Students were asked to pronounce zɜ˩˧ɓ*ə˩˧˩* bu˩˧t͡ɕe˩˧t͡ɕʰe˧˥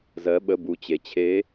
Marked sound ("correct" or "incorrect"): correct